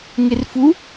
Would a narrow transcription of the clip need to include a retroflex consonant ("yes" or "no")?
no